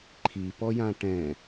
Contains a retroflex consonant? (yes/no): yes